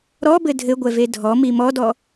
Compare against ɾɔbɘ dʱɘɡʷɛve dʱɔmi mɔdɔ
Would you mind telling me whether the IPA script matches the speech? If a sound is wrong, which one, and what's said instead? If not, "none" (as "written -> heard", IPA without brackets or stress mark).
none